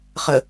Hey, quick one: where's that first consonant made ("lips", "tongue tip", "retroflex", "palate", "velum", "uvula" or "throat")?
uvula